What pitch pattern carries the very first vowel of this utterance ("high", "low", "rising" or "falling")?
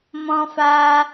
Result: high